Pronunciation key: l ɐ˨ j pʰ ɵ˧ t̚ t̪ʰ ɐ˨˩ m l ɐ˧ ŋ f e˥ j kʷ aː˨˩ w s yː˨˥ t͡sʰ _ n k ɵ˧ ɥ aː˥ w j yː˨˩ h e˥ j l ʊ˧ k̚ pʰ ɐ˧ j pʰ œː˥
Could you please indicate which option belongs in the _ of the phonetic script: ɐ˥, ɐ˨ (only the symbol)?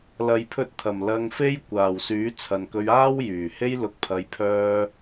ɐ˨